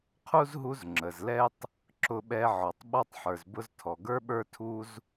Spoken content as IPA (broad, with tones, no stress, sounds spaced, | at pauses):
qʰ u˥ z ɦ u˦ z ŋ͡ǁ ə˨ z l ɛ˥ tˤ | ǁ ʊ˦ ɓ ɛ˦ ʕ ɔ˨ tˤ ɓ ɔ˥ tˤ ħ ə˞˨ z b ʊ˥ z tʰ ɔ˨ ɡ ə˞˥ ɓ ə˞˥ tʰ u˥ z